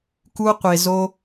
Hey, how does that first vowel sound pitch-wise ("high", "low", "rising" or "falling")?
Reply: high